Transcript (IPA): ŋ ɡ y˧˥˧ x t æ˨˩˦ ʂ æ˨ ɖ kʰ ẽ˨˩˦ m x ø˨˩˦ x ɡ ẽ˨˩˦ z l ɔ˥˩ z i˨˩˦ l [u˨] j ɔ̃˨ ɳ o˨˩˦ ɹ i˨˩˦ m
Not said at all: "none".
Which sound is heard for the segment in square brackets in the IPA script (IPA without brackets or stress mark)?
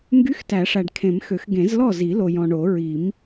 o˨